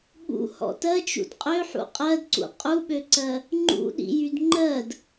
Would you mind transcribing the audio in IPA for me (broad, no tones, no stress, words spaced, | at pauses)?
ɠṵhɔ̰ tɜt͡ʃṵd qʼøħṵ qʼɜdǀṵ qʼuɓøǀɜ | ŋ͡ǃṵɗḭjyd ŋ͡ǃɜd